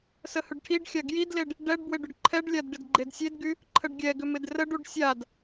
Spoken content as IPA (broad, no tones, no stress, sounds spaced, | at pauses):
s ə h ʏ ɖ ʈʰ i ɖ xʲ a ɡ j i d l e ɖ | ɖ ɛ ɖ b w ɪ ɖ ʏ ɖ ǃʰ ɛ ɖ lʲ a d ɖ ɪ d ɡ͡ǃ e d sʲ e d ɡ y | ǃʰ ə ɖ ɡʲ ɛ ɡ ʏ m ɪ d r ə ɖ u ɖ sʲ a d